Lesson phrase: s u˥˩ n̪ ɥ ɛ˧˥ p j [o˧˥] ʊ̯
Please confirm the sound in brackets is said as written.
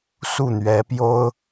no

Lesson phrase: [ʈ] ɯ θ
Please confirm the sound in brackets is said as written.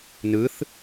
no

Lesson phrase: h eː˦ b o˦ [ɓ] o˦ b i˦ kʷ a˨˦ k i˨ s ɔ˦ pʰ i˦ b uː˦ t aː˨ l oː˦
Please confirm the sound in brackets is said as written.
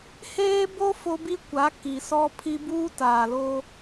no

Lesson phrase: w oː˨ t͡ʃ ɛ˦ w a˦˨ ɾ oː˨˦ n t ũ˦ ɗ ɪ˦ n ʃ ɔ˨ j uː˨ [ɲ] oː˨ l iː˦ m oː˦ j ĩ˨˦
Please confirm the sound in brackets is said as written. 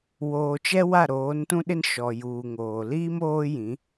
no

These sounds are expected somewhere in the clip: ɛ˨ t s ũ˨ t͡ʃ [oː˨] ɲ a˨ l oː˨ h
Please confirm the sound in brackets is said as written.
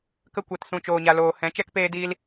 yes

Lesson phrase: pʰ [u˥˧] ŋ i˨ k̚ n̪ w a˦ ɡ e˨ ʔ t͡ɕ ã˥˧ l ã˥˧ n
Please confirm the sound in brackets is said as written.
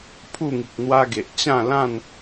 yes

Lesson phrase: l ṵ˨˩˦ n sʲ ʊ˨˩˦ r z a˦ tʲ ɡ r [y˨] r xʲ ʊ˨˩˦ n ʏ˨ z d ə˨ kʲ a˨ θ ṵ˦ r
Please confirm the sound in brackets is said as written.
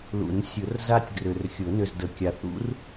no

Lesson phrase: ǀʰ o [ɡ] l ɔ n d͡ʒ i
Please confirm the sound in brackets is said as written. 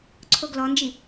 yes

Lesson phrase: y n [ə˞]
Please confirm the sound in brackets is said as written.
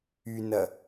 no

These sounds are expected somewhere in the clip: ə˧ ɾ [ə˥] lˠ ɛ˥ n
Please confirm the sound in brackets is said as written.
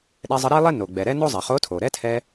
no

